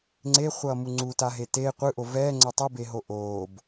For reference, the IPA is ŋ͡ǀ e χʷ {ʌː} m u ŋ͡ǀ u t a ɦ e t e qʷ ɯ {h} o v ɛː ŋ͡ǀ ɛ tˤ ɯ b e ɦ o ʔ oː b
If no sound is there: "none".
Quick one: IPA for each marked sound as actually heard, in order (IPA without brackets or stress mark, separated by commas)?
ʌː, ʔ